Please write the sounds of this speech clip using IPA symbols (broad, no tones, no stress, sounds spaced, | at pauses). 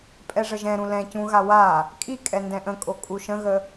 pʼ ɛ ʐ ə ʒ ɛ̃ ɾ ũ l ɛ̃ c ũ ɣ a w a | kʼ i kʼ ɛ n d ɛ̃ ʔ ə̃ kʼ o kʼ u ʃ ə̃ ɣ ə